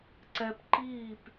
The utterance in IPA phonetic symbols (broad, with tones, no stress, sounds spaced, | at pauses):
ǀ ɛ˧ p ǃ iː˦˨ p